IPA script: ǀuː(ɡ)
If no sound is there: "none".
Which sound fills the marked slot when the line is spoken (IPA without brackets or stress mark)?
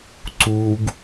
ɡ